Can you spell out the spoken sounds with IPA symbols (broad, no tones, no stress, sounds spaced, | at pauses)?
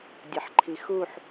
dʲ ʌ ħ ǃʰ i x u ħ